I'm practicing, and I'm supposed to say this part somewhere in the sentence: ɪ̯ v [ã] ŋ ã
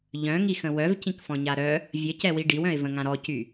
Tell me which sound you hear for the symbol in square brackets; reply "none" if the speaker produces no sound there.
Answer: ə̃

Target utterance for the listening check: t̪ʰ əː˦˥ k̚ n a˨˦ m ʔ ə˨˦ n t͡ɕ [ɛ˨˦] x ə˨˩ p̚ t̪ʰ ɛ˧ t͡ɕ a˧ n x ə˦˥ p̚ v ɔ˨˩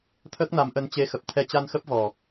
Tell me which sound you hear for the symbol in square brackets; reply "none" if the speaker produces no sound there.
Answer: e˨˦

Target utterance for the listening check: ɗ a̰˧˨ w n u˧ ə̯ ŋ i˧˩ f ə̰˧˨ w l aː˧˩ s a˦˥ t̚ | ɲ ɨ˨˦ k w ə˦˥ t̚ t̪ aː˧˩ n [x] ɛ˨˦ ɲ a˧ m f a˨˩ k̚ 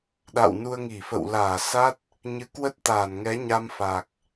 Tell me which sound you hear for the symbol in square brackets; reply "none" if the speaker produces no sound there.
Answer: ŋ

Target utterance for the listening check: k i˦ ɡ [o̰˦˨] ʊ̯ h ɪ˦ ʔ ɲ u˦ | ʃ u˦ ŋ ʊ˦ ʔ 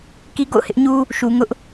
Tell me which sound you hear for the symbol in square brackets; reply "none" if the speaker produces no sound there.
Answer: o̰˦˨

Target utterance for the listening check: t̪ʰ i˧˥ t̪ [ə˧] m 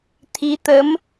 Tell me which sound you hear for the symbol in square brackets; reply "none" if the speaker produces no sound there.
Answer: ə˧˥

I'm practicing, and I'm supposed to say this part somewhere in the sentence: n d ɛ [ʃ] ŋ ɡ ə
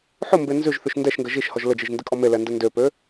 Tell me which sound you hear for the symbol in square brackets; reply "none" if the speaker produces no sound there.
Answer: ʃ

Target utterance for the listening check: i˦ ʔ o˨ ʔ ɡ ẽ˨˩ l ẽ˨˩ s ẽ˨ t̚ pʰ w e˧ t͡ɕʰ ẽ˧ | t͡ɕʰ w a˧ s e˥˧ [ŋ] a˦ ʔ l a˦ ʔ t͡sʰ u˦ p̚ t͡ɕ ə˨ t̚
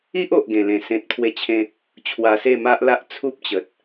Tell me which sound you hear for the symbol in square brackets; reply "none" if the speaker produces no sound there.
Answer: m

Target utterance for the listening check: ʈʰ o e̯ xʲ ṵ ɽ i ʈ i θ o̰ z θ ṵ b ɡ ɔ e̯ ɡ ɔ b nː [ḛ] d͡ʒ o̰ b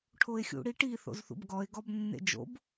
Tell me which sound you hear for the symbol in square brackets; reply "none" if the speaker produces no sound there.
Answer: ḛ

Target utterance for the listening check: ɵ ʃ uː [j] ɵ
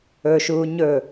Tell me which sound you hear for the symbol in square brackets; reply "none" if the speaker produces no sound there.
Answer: ɲ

